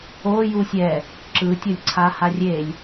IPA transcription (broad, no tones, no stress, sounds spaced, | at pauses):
o j u sʲ ɛ | ǁ ɯ tʲ ʌ lʲ ǀʰ a h a rʲ e lʲ